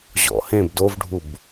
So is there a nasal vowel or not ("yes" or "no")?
yes